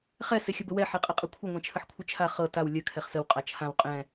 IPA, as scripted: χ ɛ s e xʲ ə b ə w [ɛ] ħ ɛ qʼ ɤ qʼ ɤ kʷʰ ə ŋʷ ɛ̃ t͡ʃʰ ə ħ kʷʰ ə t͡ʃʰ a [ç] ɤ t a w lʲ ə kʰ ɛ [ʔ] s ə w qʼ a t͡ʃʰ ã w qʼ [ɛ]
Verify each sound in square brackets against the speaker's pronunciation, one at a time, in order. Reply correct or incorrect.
correct, incorrect: χ, incorrect: χ, incorrect: ɛ̃

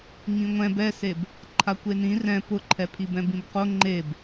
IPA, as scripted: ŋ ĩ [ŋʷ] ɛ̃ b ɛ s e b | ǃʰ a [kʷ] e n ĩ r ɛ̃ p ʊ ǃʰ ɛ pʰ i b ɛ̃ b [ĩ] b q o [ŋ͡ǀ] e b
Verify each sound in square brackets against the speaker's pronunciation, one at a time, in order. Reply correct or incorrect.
correct, correct, correct, incorrect: ŋ͡ǃ

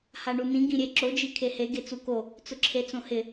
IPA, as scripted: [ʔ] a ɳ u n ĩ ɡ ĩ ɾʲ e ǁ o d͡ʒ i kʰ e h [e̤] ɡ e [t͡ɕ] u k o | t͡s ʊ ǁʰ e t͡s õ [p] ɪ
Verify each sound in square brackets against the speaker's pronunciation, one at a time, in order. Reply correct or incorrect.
incorrect: h, incorrect: e, incorrect: t͡s, incorrect: h

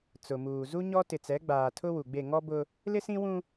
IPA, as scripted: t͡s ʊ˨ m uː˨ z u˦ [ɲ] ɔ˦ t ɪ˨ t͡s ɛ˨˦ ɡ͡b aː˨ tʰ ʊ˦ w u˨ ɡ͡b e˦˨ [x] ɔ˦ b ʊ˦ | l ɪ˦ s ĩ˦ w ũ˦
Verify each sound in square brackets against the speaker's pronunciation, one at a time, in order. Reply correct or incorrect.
correct, incorrect: ŋ

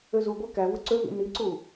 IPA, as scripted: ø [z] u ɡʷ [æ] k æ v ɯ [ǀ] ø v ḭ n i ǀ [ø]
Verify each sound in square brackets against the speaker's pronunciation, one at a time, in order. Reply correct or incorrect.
correct, correct, correct, incorrect: u

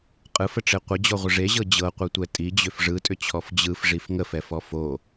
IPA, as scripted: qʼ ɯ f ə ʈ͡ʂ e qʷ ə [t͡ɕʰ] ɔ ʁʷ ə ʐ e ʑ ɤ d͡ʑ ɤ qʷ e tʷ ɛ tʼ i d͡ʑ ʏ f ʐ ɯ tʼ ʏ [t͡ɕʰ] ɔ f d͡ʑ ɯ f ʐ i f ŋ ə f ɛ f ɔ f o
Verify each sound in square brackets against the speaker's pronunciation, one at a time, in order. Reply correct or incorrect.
incorrect: d͡ʑ, correct

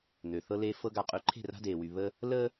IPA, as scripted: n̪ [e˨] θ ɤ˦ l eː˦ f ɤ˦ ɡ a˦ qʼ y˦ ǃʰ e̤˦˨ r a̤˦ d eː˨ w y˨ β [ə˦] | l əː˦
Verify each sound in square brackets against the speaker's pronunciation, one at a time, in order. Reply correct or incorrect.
incorrect: ø˨, correct

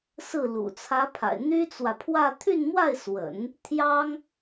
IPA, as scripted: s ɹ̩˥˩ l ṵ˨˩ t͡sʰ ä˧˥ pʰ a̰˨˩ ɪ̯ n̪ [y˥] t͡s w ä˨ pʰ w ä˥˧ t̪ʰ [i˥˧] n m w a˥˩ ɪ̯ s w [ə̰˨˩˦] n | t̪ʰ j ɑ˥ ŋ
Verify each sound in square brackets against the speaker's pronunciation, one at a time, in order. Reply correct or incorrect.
correct, incorrect: y˥˧, correct

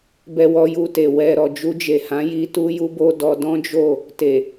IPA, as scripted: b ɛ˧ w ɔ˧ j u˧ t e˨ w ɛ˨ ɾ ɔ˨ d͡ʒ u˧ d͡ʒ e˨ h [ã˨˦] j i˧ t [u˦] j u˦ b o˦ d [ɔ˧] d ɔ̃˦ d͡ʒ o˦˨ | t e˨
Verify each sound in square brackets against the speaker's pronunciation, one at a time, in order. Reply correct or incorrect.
correct, correct, correct

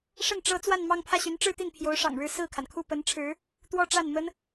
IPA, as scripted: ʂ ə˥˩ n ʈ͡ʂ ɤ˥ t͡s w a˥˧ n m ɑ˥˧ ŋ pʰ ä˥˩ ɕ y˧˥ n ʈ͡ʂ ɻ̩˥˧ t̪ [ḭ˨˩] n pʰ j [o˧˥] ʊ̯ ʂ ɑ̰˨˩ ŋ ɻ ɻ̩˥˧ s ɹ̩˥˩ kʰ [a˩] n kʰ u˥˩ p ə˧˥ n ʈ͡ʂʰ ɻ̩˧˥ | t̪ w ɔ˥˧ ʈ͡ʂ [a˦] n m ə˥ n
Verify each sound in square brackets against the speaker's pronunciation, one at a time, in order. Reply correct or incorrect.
incorrect: i˥˩, correct, correct, incorrect: a˥˩

